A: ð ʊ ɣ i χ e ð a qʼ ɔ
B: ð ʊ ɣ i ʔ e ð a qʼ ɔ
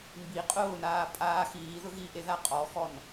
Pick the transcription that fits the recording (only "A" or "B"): B